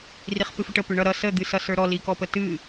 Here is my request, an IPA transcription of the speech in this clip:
r i χ p ɨ f ə ʈ ə p ʏ ɳ ʌ ɾ ʌ s ə d̪ ɨ s ʌ s ə˞ ɾ ɔ l i k ɔ p ə t ɨ

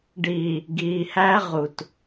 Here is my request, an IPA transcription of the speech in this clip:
ɖ iː˨ | ɡ iː˨ h æ˦ ʁ u˨ t

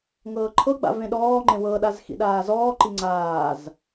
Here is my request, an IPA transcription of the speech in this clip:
ŋ ɤː ǃʰ ɤ ɡ͡b a̰ v ẽ ɗ ɔː ŋ͡ǃ ẽ w ɤ ɗ a z x ḭ ɗ aː z ɔː ǃ i ŋ͡ǀ aː z

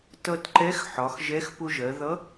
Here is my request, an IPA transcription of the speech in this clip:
t ʌ˧ t ǃ ɛ˧˥ x ħ ɒ˩˧ x ʒ ɛ˧˥ x p ʊ˧ ʒ ɜ˩˧ ð ʌ˧˥

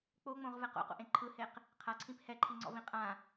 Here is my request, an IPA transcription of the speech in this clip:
k͡p o ŋ͡m õ ʁ v ɛ q o̰ q o̰ ʔ ẽ ǃʰ ɯ h e q | qʰ a ǀʰ ĩ p h ɛ ǃʰ i ŋ͡ǀ ɔ̰ v ĩ qʼ ã

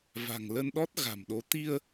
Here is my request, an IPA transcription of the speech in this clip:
v a̤˨˩ ŋ l ə˧ n ɗ ɔ˦˥ t̚ ɣ a̤˨˩ m ɗ o˨˦ t̪ i˧ ə̯

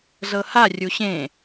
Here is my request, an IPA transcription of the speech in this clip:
z ɤ h a rʲ u ɕ ẽ

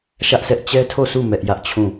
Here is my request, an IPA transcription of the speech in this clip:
ʃ ä˦ ʔ s ɛ˦ ʔ t͡ɕ ɛ˦ tʰ o˦˨ sʰ u˦˨ m ɛ˦ ʔ j ä˦ ʔ t͡ɕʰ ũ˦˨

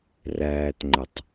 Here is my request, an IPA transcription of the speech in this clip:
r æː t ŋ͡ǃ ə tˤ

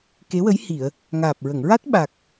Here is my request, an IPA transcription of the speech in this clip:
k e˧˥ w ə˧˥ j h i˨˩˨ ə̯ | ŋ aː˨˩ p̚ ɹ ə˨˩˨ ŋ ɹ a˦˥ t̚ ɓ a˨˩ k̚

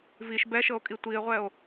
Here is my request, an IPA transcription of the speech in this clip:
v i ʃ b ɛ ʃ ɤ o̯ kʼ i tʷ i e̯ ʁʷ ɛ o̯

